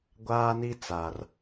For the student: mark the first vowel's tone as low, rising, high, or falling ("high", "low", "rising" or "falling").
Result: high